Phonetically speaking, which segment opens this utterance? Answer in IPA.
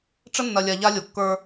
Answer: ʈ͡ʂ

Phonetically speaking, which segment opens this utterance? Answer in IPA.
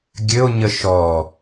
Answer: ɡʲ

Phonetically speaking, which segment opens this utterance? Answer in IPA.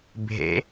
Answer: bʱ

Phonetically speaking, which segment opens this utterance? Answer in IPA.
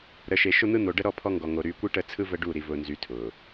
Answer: ɾ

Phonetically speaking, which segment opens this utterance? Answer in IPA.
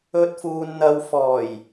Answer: ɵ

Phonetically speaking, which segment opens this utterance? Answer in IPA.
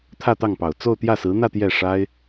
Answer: t̪ʰ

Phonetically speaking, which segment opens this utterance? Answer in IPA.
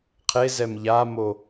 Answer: qʰ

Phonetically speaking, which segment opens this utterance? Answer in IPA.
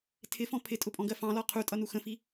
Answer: tʰ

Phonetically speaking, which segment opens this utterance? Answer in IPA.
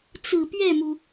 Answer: t͡s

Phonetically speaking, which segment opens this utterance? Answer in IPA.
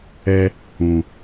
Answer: ɛ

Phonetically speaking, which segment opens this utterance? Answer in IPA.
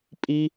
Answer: pʼ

